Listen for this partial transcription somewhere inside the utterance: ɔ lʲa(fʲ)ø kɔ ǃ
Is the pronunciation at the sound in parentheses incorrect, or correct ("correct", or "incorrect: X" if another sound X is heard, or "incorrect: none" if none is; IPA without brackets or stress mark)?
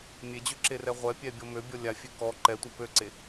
correct